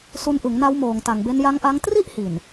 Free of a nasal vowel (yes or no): yes